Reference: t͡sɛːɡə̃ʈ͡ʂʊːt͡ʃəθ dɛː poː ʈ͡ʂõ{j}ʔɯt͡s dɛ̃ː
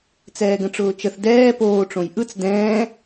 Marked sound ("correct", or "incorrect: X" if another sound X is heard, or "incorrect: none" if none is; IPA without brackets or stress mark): correct